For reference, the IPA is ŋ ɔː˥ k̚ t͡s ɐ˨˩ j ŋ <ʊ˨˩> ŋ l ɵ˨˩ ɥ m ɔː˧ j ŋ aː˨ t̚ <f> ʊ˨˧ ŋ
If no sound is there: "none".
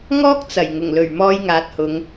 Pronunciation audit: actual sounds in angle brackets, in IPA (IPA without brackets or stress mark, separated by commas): ʊ˨˩, h